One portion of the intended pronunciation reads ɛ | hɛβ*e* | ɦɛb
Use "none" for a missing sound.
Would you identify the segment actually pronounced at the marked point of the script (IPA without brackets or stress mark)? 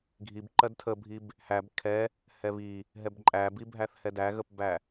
i